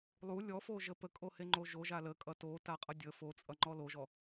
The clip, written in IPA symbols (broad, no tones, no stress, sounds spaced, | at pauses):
lˠ u lʲ ɔ f o ʒ ə p ə kʼ o h e ŋ͡ǃ o ʒ o ʒ a l ə kʼ ʌ t o t a qʼ ʌ dʲ ə f o t͡sʼ ʌ ŋ͡ǃ ɔ l o ʒ ɔ